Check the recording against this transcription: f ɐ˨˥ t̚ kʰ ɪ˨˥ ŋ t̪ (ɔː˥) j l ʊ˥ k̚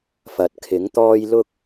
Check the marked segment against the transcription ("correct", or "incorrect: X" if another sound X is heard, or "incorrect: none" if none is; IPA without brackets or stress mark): correct